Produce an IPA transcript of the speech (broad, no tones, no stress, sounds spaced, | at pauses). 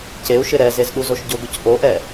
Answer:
c e u̯ ʃ ɪ ɾ ɛ z e z ɗ u z o ʃ ɟ ʊ ɡ ʊ c ʔ o ʔ ɛ